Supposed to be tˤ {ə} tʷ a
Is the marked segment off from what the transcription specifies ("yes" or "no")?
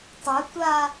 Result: yes